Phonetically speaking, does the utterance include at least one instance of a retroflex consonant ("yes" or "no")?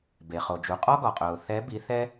no